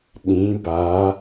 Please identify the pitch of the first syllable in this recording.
rising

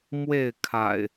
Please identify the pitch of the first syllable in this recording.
falling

